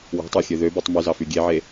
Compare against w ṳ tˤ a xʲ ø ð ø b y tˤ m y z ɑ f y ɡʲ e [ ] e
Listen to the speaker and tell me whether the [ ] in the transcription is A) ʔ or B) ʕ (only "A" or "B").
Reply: B